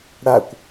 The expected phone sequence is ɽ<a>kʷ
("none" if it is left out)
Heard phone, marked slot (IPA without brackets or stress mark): a